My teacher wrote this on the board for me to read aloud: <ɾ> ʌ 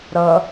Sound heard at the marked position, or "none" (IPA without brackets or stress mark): ɾ